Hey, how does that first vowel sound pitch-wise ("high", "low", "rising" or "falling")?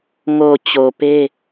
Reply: low